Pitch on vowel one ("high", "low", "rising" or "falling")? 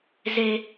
high